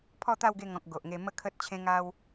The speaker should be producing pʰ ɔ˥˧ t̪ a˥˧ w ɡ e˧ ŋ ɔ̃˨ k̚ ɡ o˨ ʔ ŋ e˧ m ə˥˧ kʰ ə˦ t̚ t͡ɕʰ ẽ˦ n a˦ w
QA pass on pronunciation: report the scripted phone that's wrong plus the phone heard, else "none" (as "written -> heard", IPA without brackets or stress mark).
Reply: n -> ŋ